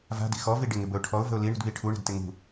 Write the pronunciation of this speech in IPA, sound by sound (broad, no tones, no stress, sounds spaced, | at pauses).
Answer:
v a̤ d i̤ x ɔ v i ɖ ɪ ŋ ɪ b ə ʊ̯ ʈʰ ɔ ʊ̯ v ə̤ ʊ̯ l i ɳ ṳ d β i ʈʰ u ɳ ə̤ d t ɪ ŋ ṳ